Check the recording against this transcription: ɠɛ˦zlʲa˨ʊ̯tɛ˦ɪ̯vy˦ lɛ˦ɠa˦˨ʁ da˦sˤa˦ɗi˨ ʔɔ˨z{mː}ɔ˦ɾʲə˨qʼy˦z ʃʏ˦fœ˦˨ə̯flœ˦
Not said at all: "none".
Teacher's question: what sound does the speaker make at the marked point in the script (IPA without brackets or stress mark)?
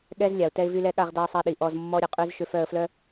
mː